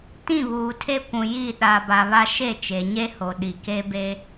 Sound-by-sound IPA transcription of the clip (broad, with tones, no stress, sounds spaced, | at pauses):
t ĩ˦˨ β uː˨ tʰ e˦ kʷ ũ˨ j i˦˨ ɗ a˨ b a˨ β a˦ ʃ e˦˨ t͡ʃ e˨ ɲ e˦ h o˨ ɗ i˨ k e˦ b e˦